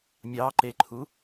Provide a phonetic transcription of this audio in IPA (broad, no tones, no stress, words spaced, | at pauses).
mʲɑǃeǃʰu